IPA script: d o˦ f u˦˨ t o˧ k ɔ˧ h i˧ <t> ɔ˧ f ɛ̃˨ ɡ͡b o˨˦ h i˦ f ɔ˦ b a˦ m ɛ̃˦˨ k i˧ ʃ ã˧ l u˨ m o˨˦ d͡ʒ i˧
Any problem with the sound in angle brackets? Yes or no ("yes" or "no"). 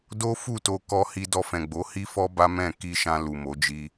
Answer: yes